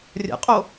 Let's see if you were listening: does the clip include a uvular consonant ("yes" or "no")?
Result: yes